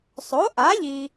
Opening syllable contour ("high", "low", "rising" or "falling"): rising